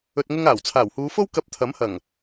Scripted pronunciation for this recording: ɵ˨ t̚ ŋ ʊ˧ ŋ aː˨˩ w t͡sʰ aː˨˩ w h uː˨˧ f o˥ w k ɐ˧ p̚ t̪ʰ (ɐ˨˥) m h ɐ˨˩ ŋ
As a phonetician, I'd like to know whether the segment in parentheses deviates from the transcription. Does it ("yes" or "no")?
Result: no